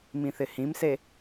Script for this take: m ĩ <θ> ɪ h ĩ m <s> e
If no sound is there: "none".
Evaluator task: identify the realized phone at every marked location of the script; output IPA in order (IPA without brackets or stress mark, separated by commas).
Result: θ, s